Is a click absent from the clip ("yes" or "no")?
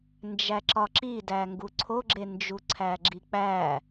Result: no